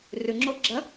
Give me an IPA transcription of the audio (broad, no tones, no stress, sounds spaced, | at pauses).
r ʉ ŋ͡ǁ o ɡ͡ǁ ɐ